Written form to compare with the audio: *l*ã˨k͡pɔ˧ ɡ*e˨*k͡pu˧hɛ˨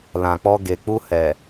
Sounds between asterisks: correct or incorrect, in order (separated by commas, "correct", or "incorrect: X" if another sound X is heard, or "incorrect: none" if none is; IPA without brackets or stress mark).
correct, correct